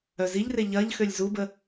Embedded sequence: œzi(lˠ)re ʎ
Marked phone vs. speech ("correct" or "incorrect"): incorrect